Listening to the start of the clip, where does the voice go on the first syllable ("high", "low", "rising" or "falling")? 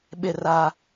falling